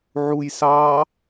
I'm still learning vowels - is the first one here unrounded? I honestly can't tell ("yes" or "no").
no